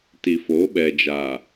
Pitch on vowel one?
low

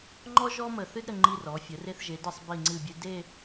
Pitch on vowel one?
high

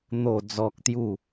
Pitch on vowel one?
low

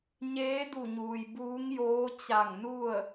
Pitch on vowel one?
rising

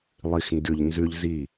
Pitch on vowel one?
low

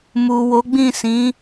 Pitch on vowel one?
low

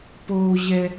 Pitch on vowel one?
high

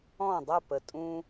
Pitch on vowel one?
falling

